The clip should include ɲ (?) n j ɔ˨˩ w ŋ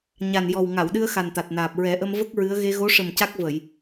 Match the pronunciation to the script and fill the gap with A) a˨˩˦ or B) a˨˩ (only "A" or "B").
B